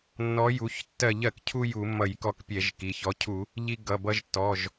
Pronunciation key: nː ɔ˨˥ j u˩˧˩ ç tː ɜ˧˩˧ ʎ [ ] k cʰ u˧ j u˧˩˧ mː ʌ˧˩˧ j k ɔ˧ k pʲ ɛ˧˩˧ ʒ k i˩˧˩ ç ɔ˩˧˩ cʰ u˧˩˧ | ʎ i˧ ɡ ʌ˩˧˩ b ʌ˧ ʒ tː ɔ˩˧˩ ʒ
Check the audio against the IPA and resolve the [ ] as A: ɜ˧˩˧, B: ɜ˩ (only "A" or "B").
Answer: B